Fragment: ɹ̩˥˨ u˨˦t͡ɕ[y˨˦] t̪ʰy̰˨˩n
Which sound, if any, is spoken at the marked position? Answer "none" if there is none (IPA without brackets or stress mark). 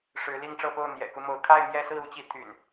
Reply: i˨˦